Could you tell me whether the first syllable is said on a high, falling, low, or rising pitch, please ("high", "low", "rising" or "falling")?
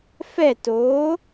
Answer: falling